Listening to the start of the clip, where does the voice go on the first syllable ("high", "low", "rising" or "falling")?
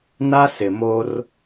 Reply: high